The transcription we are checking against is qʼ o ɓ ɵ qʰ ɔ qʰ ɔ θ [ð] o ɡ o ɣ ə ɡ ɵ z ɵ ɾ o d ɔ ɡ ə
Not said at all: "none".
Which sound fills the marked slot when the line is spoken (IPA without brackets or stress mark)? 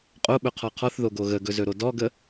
ð